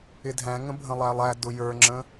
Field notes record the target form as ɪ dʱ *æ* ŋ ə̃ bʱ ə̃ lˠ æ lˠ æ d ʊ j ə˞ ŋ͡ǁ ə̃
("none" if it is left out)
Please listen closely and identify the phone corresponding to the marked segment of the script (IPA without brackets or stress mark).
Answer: æ̃